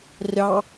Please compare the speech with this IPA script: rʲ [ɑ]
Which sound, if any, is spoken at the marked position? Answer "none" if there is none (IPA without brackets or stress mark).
ɑ